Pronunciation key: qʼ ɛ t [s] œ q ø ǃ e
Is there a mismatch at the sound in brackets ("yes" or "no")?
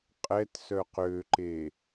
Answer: no